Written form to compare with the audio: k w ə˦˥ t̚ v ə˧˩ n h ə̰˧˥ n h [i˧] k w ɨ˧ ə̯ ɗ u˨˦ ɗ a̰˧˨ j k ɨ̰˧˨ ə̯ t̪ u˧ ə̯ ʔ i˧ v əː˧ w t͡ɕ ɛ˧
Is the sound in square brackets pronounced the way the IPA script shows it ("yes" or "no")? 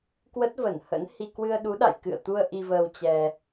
yes